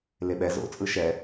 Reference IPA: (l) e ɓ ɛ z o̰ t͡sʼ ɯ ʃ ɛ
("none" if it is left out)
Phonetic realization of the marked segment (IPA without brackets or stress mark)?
l